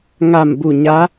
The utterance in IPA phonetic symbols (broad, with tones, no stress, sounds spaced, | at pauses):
ŋ a˧˩ m b u˧˩ ɲ a˧˥